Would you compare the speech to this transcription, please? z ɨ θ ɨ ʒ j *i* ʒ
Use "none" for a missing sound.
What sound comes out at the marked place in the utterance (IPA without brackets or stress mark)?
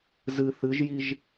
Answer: i